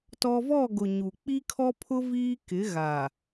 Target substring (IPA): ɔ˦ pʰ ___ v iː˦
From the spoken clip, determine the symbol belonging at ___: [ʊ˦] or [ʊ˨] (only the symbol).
ʊ˦